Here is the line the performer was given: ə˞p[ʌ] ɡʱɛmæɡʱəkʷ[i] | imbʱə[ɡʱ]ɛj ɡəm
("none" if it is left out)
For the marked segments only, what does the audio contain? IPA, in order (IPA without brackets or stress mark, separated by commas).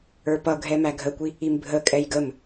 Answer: ʌ, i, kʼ